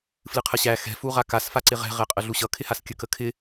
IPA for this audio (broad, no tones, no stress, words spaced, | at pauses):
flɨqʰəɕæ xɛ̤ fuʁakas faǀɪʁɛ̤ ʁɛqʼəɮuɕʌ kʰɪhaskʲə kəkʰɪ